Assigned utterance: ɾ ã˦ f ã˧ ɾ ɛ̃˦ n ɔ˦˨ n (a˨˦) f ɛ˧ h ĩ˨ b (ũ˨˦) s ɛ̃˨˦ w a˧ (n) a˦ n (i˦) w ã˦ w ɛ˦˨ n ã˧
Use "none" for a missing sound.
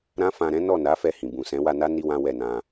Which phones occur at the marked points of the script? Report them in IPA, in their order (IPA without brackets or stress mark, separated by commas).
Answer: a˨˦, ũ˨, n, i˦